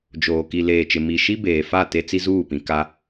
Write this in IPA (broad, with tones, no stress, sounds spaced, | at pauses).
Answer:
d͡ʒ oː˨ k i˨ l eː˨ t͡ʃ ɪ˨ m i˨ ʃ i˦ b eː˨ f a˦˨ t e˦ t͡s i˦ z uː˦˨ p ĩ˨ k a˦